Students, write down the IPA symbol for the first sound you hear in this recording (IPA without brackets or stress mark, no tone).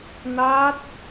n